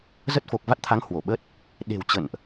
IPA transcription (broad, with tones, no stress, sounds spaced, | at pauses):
z ə˦˥ t̚ f o˨˩ k̚ v a˦˥ t̚ t̪ʰ a˨˦ ŋ h w o˧˩ ɓ ə˦˥ t̚ | ɗ e̤˨˩ w t͡ɕ ə̰˧˨ n ʔ